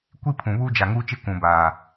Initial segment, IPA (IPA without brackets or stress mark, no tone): kʷ